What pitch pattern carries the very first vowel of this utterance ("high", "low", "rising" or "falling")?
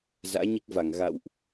rising